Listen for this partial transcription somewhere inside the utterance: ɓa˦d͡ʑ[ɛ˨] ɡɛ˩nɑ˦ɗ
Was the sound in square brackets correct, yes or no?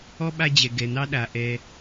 no